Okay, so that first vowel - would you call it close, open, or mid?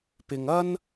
close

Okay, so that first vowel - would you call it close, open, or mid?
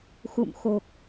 close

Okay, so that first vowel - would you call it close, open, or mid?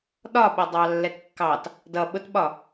open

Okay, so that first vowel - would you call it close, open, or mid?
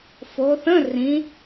mid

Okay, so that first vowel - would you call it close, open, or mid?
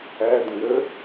open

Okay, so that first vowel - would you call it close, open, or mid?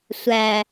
open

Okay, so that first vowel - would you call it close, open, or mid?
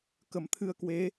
mid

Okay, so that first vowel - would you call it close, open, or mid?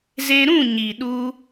mid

